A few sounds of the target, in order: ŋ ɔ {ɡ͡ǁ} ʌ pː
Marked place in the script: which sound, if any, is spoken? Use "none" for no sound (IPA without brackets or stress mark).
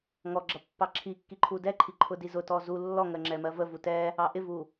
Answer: ɡ͡ǁ